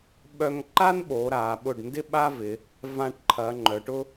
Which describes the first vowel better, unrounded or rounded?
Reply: rounded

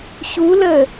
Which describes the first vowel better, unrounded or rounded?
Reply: rounded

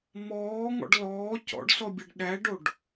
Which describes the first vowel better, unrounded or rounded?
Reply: rounded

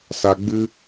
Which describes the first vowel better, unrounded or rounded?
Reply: unrounded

